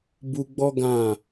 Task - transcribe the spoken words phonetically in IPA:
bu˧ɡ͡bɔ˦ ɡã˦˨

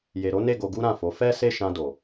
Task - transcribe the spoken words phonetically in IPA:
je˨ɾo˨˦ ne˦˨ ɡo˧ɡu˦ɾã˦˨fo˨˦ fɛ˦ se˦˨ʃã˧do˨

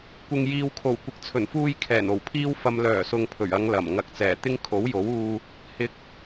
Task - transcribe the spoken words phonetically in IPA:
kʷɪ˨ŋjiː˨wkʰo˨˩w kʷɪ˨k̚t͡sʰɵ˨˩nfuː˧j kʰɛː˨˩no˨˩wpʰiː˥w fɐ˧m lœː˨˩sʊ˨ŋ pʰɵ˨˩ɥɐ˨˧ŋ lɐ˨˩m ŋɐ˨˥k̚t͡sɛː˨˩t̪ɪ˥ŋ kʰo˨˥wjo˨˥wuː˧ | hɪ˨˥k̚

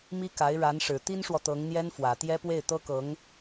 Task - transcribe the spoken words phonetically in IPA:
mi˥ka˧˥ɪ̯ ɻa˧˥nʂɻ̩˨˩ t̪i˥nʂwɔ˨ t̪ɤ˧˥ŋn̪jɛ˥n fwä˨˩t̪jɛ˥pwe˥˩ɪ̯ t̪ɤ˥kɤ˧˥ŋ

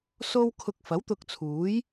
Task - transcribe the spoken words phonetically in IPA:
so˧wkʰʊ˨k̚ fɐ˨˥wt̪ʊ˧k̚t͡sʰuː˨˥j

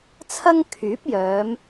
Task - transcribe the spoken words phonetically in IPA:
t͡sʰɐ˥ŋkʰyː˨˥p̚jœː˨˧m

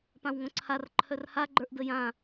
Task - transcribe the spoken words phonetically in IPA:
pãwŋõǀʰar ǃʰœrha ɡ͡ǃə˞ʔdəjã

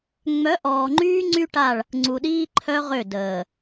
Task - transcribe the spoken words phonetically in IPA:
ŋ͡mœ˨˦ʔɔː˨ŋ͡ǃyː˦ ŋ͡ǀy˦ʈa˦˨ɭ | ŋ͡ǀu˨ɗiː˦ ǃʰœ˦ʁø˦˨ dəː˨

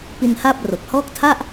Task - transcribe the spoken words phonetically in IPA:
pi˧nha˥˩p̚ ro˨˩k̚hɔː˥˩k̚ tʰa˥˩ʔ

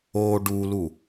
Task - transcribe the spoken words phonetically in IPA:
o ɖulu

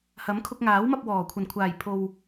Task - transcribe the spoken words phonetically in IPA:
hɐ˨˥mkʰʊ˧k̚ŋaː˨˥wmɐ˧p̚ wɔː˨˩ kʷʰɐ˨˩nkʷʰaː˨˩jpʰo˨w

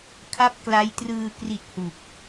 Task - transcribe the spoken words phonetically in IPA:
kʰa˥˩p̚kla˦˥jtrɯː˧ kri˨˩t̚ hu˨˩k̚

